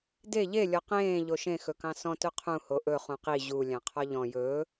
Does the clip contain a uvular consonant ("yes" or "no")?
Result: yes